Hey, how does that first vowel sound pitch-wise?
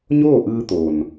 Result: falling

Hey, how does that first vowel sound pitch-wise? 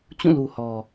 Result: falling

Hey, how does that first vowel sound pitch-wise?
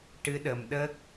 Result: rising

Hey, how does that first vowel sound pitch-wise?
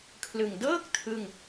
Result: low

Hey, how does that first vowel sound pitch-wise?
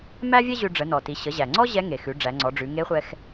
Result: high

